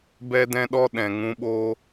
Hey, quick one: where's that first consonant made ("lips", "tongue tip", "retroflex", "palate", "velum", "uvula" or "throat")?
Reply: lips